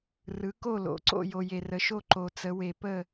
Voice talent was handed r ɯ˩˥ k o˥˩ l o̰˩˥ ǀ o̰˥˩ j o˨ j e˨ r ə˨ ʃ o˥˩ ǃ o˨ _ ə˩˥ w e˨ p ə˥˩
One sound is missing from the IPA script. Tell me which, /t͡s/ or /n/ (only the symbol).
t͡s